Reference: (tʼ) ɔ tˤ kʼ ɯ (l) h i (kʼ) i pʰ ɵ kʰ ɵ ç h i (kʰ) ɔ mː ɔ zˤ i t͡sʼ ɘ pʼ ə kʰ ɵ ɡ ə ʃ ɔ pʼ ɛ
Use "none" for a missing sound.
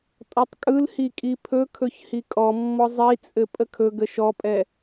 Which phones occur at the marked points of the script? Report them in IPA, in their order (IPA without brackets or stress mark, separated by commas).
tʼ, l, kʼ, kʼ